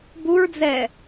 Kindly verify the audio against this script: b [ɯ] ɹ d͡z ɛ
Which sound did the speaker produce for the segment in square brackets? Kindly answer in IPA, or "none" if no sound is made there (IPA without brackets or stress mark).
u